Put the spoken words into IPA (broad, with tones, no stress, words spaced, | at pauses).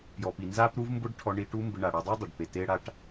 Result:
pjɔ˩pi˩ nza˥pɾu˥vmbʊ˥ɖ ʈʰɔ˧ɳi˧ ʈu˥mbɪ˧ ɳa˩ɽɔ˧dˤe˥dˤʊ˩ɖ pe˩te˧ɽa˧ʈ